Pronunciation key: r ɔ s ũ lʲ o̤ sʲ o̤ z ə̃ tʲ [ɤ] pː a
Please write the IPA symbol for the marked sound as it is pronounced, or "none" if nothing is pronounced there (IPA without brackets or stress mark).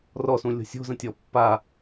ɔ